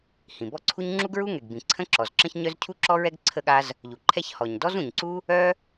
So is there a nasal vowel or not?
yes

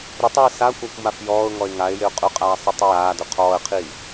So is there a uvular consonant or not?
yes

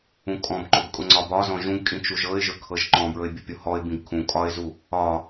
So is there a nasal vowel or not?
yes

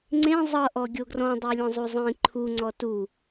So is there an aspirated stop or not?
yes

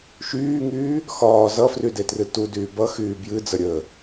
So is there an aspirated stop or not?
no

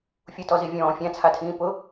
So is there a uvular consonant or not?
no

